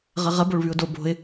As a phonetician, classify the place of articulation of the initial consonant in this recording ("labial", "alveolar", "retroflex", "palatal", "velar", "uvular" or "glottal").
uvular